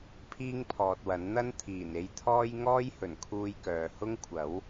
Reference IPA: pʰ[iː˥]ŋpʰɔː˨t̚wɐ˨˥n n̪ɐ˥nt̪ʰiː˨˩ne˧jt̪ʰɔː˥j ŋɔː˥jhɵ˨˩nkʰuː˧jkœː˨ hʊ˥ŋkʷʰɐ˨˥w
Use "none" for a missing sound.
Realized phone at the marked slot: iː˥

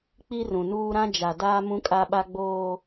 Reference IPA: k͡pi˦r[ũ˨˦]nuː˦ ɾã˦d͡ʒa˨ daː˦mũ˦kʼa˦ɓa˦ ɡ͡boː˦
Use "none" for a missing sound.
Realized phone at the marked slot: ũ˨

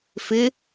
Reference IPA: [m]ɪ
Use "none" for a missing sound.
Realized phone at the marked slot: f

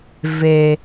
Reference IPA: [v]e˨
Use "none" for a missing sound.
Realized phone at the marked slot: v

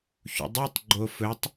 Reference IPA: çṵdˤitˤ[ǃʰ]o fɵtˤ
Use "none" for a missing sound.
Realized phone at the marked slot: ɡ͡ǃ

